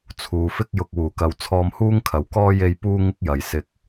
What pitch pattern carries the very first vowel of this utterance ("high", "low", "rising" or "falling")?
low